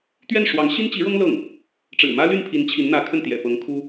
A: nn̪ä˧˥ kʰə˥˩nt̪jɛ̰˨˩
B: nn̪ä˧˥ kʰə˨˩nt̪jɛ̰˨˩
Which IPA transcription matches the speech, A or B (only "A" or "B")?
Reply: A